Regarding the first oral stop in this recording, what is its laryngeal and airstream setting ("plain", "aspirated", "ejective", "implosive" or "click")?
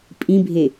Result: ejective